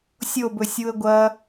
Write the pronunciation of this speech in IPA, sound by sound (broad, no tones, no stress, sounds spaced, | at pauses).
sʲ o b ɵ sʲ u ə̯ ɡʷ ɐ